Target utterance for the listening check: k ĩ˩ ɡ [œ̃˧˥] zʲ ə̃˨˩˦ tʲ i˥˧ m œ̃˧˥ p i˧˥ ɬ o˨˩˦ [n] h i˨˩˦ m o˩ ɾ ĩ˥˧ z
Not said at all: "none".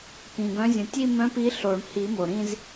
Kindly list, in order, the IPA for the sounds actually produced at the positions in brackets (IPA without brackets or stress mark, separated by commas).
œ̃˧˥, ɳ